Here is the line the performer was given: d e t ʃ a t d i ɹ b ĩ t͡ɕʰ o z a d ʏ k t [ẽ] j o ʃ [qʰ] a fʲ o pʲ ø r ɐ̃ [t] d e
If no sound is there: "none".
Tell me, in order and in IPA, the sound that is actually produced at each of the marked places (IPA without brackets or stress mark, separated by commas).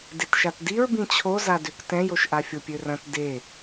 ɛ̃, ʔ, t